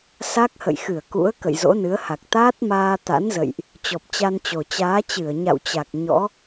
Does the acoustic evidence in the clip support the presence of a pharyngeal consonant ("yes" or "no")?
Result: no